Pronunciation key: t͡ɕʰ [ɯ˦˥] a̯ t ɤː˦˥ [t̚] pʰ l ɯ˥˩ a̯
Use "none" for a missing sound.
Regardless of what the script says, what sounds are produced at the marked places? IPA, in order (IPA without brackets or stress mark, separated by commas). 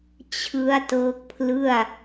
ɯ˦˥, k̚